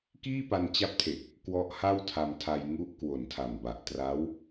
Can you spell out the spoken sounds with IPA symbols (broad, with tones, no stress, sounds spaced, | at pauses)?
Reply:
k iː˥˩ p a˧ n t͡ɕ a˦˥ p̚ tʰ e˨˩ k̚ | k w ɔ˦˥ ʔ h a˥˩ w tʰ a˧ m tʰ a˧ j ŋ u˦˥ ʔ k w o˨˩ n tʰ a˨˩ m b a˨˩ ʔ t r a˦˥ w